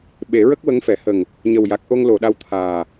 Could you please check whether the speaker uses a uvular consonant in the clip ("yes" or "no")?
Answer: no